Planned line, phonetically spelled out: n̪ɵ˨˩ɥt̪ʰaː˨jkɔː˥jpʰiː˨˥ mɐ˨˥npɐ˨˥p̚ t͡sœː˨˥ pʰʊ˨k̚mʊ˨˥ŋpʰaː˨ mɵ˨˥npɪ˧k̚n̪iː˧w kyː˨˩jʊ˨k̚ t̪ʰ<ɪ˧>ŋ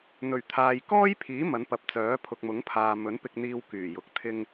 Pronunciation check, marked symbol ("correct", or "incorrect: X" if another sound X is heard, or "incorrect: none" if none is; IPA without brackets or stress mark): correct